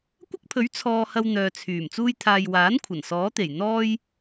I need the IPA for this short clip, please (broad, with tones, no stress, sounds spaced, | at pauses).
kʷ ɐ˥ k̚ pʰ ɵ˨˥ ɥ t͡sʰ ɔː˧ h ɐ˧ w n̪ œː˨ t͡sʰ yː˨˩ m t͡s uː˧ j t̪ʰ aː˨ j w aː˨˥ n kʷʰ ɐ˨˩ n s ɔː˨˥ t̪ e˨˩ j n̪ ɔː˥ j